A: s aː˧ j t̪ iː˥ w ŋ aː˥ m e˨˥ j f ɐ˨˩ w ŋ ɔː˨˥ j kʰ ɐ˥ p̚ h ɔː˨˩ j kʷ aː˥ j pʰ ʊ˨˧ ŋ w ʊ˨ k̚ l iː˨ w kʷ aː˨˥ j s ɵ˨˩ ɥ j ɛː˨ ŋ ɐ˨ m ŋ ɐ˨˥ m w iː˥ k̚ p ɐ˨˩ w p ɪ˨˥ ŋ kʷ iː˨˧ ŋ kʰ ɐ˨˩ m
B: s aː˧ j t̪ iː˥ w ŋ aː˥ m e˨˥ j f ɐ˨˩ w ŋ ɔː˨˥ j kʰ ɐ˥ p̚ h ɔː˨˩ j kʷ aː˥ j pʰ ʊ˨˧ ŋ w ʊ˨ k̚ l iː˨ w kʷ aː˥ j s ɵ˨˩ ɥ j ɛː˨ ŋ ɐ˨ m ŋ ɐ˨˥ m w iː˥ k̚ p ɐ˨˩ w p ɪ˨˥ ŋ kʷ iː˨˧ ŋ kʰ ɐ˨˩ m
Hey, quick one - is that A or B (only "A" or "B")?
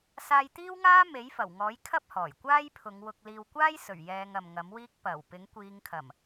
B